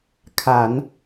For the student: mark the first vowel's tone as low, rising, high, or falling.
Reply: low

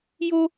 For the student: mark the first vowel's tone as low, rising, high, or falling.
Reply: high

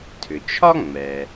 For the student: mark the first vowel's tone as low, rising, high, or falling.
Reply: low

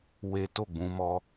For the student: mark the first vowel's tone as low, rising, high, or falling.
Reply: high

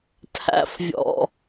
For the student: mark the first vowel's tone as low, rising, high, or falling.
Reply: low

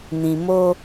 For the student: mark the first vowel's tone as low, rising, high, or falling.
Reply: low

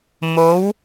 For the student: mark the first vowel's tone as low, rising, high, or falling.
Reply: rising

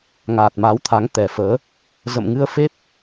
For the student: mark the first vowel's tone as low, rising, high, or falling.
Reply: low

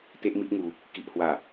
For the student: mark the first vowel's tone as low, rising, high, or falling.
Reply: high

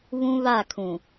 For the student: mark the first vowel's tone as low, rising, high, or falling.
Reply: high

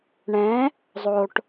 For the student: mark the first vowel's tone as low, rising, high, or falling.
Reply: rising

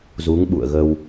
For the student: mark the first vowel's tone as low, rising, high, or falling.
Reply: rising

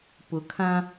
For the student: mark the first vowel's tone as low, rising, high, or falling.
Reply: low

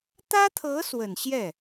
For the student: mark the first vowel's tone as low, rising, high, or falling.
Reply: high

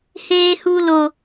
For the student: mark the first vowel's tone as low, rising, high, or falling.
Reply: high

